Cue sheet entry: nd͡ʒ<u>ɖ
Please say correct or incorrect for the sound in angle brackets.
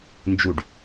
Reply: correct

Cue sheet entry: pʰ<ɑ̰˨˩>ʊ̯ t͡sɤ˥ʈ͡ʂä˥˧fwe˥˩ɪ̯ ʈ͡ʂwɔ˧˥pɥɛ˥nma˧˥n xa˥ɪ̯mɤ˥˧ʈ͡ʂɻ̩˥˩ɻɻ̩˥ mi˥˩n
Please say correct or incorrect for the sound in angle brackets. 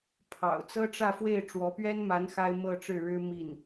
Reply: correct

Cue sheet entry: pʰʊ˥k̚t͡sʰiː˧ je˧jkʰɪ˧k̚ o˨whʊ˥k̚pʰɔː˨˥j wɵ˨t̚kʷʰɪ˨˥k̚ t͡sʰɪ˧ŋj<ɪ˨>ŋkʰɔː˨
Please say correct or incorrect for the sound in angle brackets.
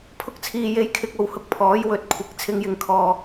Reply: correct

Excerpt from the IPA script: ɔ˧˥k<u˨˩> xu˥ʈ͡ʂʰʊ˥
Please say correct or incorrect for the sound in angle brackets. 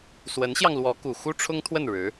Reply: correct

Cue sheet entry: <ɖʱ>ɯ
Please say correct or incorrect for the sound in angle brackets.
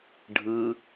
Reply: correct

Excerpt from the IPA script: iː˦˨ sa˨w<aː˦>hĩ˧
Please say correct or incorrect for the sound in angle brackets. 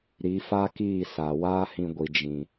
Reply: correct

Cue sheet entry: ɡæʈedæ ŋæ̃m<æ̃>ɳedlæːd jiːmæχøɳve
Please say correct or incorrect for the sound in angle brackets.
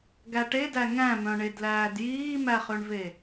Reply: incorrect: œ̃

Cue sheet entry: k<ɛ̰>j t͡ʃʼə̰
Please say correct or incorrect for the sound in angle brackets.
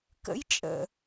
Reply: incorrect: ə̰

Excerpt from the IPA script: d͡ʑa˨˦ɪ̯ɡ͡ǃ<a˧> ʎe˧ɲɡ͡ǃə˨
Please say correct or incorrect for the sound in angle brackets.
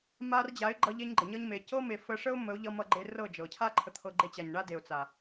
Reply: incorrect: ʌ˧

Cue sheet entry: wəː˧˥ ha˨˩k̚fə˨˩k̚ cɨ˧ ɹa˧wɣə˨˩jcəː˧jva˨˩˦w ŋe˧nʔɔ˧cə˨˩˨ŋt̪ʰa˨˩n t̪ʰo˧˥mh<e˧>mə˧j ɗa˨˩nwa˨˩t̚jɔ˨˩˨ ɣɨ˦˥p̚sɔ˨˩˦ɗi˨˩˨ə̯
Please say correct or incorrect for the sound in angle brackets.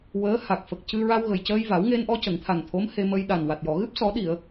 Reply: correct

